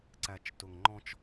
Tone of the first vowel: low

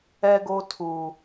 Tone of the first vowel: high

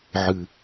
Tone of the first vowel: low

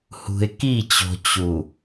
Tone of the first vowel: low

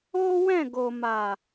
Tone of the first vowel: high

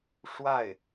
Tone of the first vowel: falling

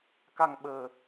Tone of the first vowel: low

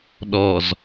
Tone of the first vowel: low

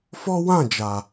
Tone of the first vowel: high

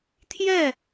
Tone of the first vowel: falling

